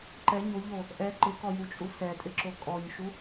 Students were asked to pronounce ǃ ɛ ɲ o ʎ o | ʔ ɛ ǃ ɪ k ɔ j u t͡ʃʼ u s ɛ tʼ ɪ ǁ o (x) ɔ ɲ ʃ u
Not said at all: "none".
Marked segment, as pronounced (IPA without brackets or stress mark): kʼ